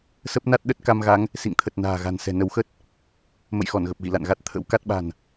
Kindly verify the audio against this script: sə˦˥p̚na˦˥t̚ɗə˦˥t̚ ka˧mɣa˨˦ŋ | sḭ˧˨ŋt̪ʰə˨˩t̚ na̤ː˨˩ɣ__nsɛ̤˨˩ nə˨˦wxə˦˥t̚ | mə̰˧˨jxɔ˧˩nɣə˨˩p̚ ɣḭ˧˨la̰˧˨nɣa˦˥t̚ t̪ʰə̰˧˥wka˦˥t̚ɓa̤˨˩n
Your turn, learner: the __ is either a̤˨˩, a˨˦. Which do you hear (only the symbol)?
a̤˨˩